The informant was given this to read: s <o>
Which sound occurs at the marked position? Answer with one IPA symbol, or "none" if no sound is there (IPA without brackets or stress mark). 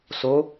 o